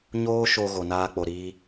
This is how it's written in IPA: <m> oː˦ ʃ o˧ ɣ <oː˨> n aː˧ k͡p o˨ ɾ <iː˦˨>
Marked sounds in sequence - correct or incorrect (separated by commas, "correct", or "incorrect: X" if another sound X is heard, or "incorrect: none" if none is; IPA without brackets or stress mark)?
incorrect: ɲ, incorrect: o˨, incorrect: iː˧